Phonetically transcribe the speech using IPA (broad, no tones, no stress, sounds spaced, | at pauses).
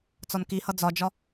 t͡s ɒ n k i h ʌ d͡z ɒ d͡ʒ ɒ